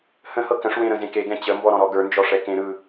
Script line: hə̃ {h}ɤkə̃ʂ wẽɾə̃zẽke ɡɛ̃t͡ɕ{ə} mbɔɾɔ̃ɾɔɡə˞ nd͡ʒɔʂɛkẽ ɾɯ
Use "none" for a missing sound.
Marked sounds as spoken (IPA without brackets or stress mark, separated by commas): h, ə